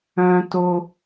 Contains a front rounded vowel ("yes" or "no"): yes